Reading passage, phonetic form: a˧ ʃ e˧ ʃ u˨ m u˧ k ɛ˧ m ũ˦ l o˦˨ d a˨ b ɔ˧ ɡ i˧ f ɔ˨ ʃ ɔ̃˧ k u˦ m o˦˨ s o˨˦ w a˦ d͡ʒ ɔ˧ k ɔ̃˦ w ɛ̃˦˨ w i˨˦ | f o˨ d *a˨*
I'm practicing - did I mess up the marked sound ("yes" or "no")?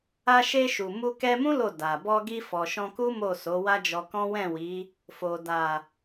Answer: no